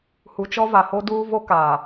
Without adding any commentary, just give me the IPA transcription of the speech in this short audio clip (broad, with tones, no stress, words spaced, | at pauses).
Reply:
hu˨t͡ʃɔ˦va˨ho˦ duː˦vo˦kaː˨